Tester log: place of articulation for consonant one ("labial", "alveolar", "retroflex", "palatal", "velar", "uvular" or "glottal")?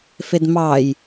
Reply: labial